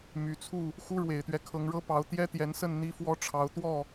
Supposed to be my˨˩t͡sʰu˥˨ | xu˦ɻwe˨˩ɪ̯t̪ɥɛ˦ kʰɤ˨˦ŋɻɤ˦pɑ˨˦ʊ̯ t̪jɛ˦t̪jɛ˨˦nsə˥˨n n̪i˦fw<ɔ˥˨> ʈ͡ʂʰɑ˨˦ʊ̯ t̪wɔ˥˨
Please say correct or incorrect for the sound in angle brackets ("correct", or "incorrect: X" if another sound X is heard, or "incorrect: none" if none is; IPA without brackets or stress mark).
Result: incorrect: ɔ˦